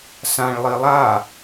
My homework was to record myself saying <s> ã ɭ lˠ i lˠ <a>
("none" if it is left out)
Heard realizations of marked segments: s, a

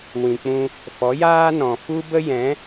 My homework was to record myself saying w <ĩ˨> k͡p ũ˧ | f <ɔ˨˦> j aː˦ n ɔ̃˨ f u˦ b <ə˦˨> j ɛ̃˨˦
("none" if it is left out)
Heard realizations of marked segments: ĩ˨, ɔ˨˦, ə˦

